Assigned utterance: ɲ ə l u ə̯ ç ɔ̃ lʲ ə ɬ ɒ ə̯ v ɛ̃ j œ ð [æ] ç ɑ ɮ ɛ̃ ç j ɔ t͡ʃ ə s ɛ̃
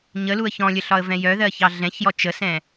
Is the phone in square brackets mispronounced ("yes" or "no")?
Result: yes